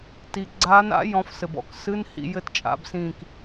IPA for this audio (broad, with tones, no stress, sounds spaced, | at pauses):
t i˩ ɡ͡ǀ aː˨˦ n a̰˨˦ j ɔ̃˨˦ f s ɘ˩ b ɔ̰˨˦ k s ɨ˧˥˧ n h ḭ˧˩˧ j ɘ˦˨ t t͡ʃʼ a̰˨˦ b s ĩː˦˨ k